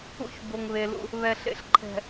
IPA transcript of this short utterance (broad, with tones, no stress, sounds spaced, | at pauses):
ṵ˦ ç b o˨ ŋ β e˨ l ṵ˦ | β ɛ˨ ɬ ḛ˦ ɬ ǃʰ ɛ̤˨